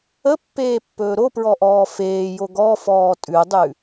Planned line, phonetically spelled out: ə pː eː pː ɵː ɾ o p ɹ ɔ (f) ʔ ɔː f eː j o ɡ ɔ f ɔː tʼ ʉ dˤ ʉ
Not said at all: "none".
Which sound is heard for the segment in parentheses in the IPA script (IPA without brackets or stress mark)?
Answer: none